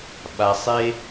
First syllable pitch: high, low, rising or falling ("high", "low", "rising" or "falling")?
low